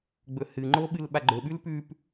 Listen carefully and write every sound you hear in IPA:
ɡ͡bɵhɨŋ͡ǃo ɓɨlɓaɡ͡ǃɵɓʉl pʉp

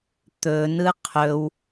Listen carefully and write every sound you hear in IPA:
t̪ɵnɯ qʰɵw

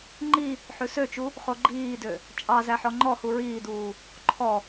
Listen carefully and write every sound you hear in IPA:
ŋ͡ǃi | ħʉsøt͡ʃu | χoɡ͡ǃiːdø | t͡ʃʼɑ zæħɔŋ͡ǃɔhu ɹiːduː | ǃʰɔ

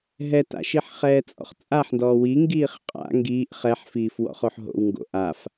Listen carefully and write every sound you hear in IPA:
ɦɛta̰ʃiħ χɛːt͡sʼɔ̰χt͡sʼaħndɔː wiŋɡiːχ qʼa̰ ŋɡiːʔ χɛħfiːf wɔ̰χoħɦo̰w ŋɡo̰ʔaf

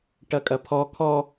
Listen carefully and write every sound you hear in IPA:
ʈɐkʼɐpʰɔ kʰɔ

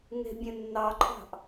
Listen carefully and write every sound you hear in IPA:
ŋe̤bʲɛ̃ nːɑǃʼɑ̤ʔ

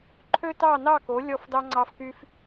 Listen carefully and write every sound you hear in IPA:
ǃʰø˥tɑ˥˧nɑ˥˧ko˨˦ lʲɔ˥˧fdɑ˥ ŋ͡ǀɑ˥fky˥f

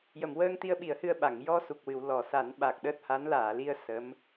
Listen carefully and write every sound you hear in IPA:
jə˨˩˨mwəː˧ŋt̪i˧ə̯ɓi˨˩˦ə̯ hɨ˧ə̯ɓa˨˩˨ŋ jɔ˧ su˨˩k̚wɨ˨˩˨w lɔ˨˩˨ sa˨˩˦nɓa˨˩k̚ ɗəː˦˥t̚ha˧˥n laː˨˩˨li˧ə̯ sə˧˥m

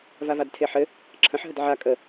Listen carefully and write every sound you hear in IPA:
vavadtʰeħɘ | ǁʰə̃ħɦəd ʕa kʼə

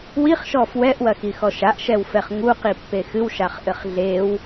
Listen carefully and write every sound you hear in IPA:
wiχʃɔ fwɛʔwɐxixɔ ʃaʔʃɛwfɛχ ŋuqipːe xɨwʃaχʔɘχ ɮew

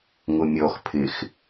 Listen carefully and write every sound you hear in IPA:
ŋʊmʲɔx pʰɪx

